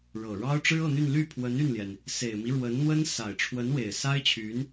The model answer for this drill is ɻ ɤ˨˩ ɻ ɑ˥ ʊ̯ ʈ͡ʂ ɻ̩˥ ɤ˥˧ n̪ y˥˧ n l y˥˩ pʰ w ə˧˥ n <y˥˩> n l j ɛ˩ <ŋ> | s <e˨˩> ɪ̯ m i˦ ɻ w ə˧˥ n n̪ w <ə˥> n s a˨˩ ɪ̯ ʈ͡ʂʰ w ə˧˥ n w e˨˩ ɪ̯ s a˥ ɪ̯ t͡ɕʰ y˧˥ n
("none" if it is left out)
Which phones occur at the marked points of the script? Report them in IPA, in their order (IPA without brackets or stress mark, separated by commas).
y˥˩, n, e˨˩, ə˥